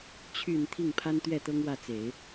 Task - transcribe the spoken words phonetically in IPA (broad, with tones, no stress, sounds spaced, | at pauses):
t͡ɕʰ y˨˩ n t̪ʰ i˥˩ ŋ pʰ a˥ n t̪ ɥ ɛ˥˩ t̪ ɤ˥ ŋ w ä˥˩ t͡s e˨˩˦ ɪ̯